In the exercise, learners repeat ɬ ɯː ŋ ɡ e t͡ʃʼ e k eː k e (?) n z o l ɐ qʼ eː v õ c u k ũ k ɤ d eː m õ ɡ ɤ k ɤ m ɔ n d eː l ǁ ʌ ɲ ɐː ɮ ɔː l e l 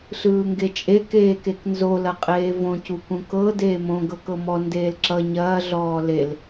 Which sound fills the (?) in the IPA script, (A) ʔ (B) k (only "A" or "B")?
B